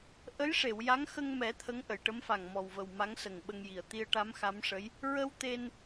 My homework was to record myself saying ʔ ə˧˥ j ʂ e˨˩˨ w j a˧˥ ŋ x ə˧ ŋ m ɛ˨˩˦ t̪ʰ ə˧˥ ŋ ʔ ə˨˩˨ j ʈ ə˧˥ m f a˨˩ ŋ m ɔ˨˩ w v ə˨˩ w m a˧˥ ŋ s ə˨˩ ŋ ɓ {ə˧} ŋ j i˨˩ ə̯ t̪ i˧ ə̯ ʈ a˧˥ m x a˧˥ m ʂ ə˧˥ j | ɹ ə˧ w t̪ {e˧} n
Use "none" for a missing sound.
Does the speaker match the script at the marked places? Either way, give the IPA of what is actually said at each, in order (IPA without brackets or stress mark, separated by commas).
ə˧, e˧